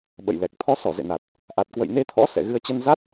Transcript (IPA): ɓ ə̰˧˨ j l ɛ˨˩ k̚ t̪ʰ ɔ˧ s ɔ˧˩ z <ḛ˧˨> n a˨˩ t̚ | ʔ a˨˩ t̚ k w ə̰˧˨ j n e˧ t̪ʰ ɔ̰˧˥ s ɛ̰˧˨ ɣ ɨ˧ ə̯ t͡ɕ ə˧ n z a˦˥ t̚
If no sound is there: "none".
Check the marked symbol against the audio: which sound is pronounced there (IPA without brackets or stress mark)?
ḛ˧˨